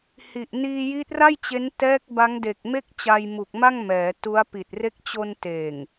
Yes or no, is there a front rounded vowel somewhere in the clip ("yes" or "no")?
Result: no